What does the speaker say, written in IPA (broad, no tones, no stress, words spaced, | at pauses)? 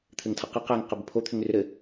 t̪ʰɘŋtʰɤqɤ qæŋ qəbəpʰo t̪ʰʏŋrʏɾɘ